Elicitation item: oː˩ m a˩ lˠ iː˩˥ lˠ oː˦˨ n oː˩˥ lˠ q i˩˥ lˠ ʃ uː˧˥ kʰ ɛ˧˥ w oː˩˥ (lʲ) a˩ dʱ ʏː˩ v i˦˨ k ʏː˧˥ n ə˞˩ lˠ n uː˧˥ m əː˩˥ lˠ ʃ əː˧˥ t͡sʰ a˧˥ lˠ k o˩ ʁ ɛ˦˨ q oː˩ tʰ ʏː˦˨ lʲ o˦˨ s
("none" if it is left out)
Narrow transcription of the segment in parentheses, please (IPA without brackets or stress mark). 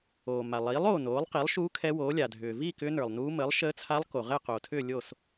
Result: lʲ